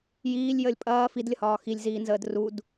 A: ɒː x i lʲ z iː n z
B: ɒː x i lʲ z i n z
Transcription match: A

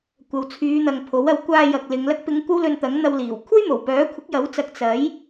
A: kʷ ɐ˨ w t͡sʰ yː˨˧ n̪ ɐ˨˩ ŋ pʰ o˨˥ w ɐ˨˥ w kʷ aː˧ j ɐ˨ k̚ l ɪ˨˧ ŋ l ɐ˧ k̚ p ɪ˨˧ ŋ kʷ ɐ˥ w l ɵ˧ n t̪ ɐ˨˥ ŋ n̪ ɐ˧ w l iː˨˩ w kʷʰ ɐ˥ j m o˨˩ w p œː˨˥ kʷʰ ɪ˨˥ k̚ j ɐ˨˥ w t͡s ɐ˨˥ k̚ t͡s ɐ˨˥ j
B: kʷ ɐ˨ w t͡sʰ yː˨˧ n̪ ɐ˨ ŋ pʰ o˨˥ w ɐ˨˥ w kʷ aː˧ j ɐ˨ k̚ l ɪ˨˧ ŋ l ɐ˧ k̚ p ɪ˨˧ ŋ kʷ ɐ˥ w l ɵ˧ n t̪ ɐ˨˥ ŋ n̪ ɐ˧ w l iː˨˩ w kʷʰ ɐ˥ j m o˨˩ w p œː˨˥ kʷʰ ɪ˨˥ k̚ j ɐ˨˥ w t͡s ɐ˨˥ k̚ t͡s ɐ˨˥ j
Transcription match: B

